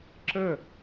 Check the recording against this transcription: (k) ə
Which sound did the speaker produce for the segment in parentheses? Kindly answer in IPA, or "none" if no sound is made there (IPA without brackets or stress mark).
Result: ǁ